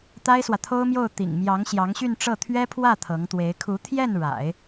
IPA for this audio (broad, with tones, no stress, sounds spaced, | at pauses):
t̪ a˥ ɪ̯ s w ä˨ t̪ʰ o˥ ʊ̯ m j o˥˩ ʊ̯ t̪ ḭ˨˩ ŋ m j ɑ˧˥ ŋ ɕ j ɑ˧˥ ŋ ɕ y˥˧ n ʈ͡ʂ ɤ˥˩ t̪ʰ ɥ ɛ˥ pʰ w ä˥˩ t̪ʰ ɤ˧˥ ŋ t̪ w e˧˥ ɪ̯ kʰ u˧˥ t̪ʰ j ɛ˥˩ n ɻ a̰˨˩˦ ɪ̯